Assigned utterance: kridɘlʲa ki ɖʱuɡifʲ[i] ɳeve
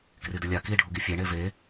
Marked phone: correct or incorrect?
incorrect